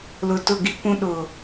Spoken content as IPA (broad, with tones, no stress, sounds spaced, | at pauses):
l ʊ˨ t ʊ˦˨ ɡ i˦ kʷ ũ˦ ɗ ʊ˨